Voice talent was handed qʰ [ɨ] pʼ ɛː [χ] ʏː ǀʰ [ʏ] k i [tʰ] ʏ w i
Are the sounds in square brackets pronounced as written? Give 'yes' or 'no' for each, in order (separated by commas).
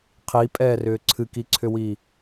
no, no, no, no